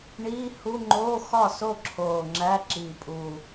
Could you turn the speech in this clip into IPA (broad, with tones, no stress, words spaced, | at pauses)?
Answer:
ɳiː˧˥˧hu˧˥˧ ŋ͡ǃoː˧˥˧xɒ˥˩so˥˩ ǁʰoː˨˩ ŋ͡ǁæ˧˥˧ǁiː˨˩pʼuː˨˩